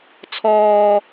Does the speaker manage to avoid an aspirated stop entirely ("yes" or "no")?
no